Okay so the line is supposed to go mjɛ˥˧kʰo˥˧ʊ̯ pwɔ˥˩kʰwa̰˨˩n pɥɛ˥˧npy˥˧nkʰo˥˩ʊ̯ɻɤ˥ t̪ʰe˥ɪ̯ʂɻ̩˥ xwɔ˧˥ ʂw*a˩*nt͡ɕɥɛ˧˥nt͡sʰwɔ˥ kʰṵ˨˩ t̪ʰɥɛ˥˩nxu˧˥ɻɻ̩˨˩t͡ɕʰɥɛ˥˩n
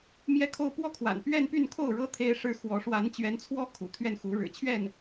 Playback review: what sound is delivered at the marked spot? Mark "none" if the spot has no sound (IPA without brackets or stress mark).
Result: a˧˥